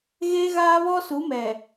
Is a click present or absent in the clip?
absent